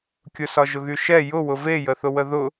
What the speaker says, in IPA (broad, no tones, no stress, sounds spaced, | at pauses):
kʲ ʊ s ɒ ʒ ʊ ɣ y ʃ ɛ j ʊ w ʊ v e j ə θ ʊ w ə ð ʊ